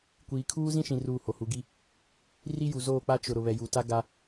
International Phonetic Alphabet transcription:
kʷ iː˨ kʰ uː˦ z ĩ˦ ʃ ĩ˨ r uː˦˨ h o˨ h u˨˦ ɡ i˦ | r i˦ j u˨ z oː˦˨ k͡p a˦ t͡ʃ ʊ˨ ɾ ʊ˨ β ɛ˨ j u˨ t a˦ ɡ a˦

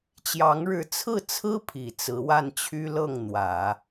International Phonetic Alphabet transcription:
t͡ɕ j ɑ˧˥ ŋ ɻ ɻ̩˧˥ t͡sʰ ɹ̩˥˩ t͡sʰ ɹ̩˥ pʰ i˨˩ t͡s ɹ̩˧˥ w a˥˩ n t͡ɕʰ y˥ l ɤ˥˩ ŋ n̪ w ä˨˩˦

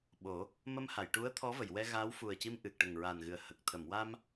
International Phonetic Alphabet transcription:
ɓ o˨˩˦ | m ə˧ m h a˨˩˨ j ʈ u˧˥ ə̯ t̪ʰ ɔ˧˥ v ə˨˩˨ j w ɛ˧ ɣ aː˧˥ w f u˨˩ ə̯ c i˧ m ʔ ɨ˨˩ k̚ ʈ ə˨˩ ŋ ɹ a˨˩ n ɣ ɨ˨˩ ə̯ h ə˨˩ k̚ t̪ʰ ə˨˩˨ m w a˧ m

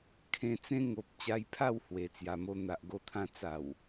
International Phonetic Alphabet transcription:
kʰ ẽ˧ t͡s ẽ˧ ŋ o˨ p̚ t͡ɕ a˧ j pʰ a˥˧ w h w e˨˩ t͡s j a˨˩ m o˧ n̪ a˨ ʔ ɡ o˧ t̪ʰ ã˧ t͡s a˨˩ w

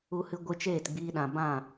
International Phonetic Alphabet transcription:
u˧ h ɨ˧ ɡʷ ɨ˧ t͡ʃ eː˦˨ t ɡ͡b iː˧ ɗ ã˨ b ã˦˨

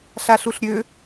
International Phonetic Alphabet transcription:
ɬ a ɬ u ɬ ɾʲ ø

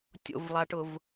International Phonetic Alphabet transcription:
tʲ o̰ v lˠ a ʈ ʊ v

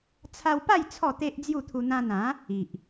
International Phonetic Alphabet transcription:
t͡sʰ a˧ w p a˥˧ j t͡sʰ ɔ˥˧ t̪ e˦ ʔ d͡z j u˥˧ t̪ʰ u˧ n̪ ã˧ n̪ ã˨˦ | i˨ ʔ

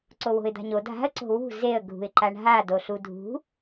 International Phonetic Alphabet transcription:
ǀ o w o̤ ɪ̯ d̪ a̤ ɲ o dʱ a̤ ə̯ ǀ o̤ w ṳ z e ə̯ ɡʱ ṳ ɪ̯ ǃ a ɳ ɦ a d o ɬ u dʱ ṳ

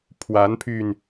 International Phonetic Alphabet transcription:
pʰ w a˧˥ n pʰ y˧ n

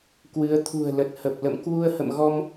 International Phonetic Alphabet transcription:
k w ɨ˨˦ ə̯ t̪ʰ ṳ˨˩ ə̯ l ə˨˩ t̚ h ə˨˩ p̚ l ə̰˧˨ m k w u˧ ə̯ h ə̰˧˨ m ɣ ɔ˧ m

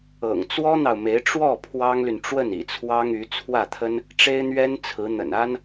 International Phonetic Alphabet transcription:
ɤ̰˨˩ ŋ t͡s w ɔ˥ n̪ ɑ˨ ʊ̯ m e˧˥ ɪ̯ ʈ͡ʂ w ɔ˥˩ pʰ w ɑ˥ ŋ l y˨ n ʈ͡ʂ w ə˥˩ n ḭ˨˩ t͡sʰ w ɑ˥ ŋ y˧˥ t͡sʰ w ä˥˩ t̪ʰ ə˥ n | ʈ͡ʂ e˥ ɪ̯ n̪ ɥ ɛ˥ n t͡sʰ ɹ̩˧˥ n̪ ə̰˨˩ n a˥ n

